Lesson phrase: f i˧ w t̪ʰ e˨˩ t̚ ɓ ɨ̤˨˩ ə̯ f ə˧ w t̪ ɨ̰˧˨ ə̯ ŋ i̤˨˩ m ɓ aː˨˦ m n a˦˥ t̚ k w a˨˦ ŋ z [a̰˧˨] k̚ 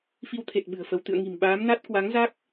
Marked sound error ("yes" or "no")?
yes